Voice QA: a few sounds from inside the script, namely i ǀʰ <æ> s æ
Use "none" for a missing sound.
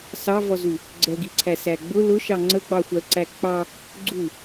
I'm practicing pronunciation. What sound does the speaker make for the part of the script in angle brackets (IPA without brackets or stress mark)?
æ